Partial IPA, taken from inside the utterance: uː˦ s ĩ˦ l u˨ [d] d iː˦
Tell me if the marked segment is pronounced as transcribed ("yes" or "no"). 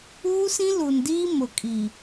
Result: no